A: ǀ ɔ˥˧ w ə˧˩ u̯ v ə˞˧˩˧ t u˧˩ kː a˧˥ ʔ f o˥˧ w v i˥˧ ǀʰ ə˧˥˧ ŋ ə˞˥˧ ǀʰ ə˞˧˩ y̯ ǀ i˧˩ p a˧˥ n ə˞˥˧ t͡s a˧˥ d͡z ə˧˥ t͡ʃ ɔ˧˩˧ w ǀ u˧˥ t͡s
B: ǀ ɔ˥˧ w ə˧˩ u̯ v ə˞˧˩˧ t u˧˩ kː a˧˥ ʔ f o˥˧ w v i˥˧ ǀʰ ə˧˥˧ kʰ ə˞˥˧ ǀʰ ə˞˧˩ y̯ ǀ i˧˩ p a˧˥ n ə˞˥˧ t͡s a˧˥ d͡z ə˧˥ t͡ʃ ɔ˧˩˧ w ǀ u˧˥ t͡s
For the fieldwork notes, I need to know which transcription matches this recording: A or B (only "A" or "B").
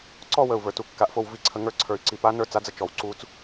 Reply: A